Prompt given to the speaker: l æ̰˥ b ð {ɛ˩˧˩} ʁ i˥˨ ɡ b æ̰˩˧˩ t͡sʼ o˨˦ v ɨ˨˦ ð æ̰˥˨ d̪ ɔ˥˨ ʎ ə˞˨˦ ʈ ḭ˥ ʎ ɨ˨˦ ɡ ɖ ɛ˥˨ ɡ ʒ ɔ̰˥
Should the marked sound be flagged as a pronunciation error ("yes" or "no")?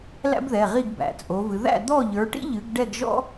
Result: no